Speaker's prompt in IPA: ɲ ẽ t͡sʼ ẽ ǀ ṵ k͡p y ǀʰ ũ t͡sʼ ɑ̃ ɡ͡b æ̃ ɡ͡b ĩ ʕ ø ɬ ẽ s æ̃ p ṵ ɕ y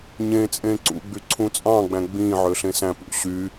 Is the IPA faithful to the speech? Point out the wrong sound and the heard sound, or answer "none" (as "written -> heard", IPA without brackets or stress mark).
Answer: k͡p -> ɡ͡b